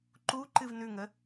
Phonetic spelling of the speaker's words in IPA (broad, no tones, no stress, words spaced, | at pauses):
ǃu ǃɨvnʉŋə